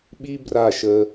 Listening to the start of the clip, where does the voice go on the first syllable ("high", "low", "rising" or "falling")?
high